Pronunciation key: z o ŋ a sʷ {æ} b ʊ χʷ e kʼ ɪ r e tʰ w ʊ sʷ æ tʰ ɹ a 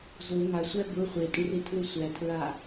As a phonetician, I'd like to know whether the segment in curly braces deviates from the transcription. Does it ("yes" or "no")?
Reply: no